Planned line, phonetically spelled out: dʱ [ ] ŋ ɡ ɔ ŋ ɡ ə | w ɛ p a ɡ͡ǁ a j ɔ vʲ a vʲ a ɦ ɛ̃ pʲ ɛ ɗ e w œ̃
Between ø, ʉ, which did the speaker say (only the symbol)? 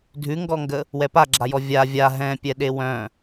ʉ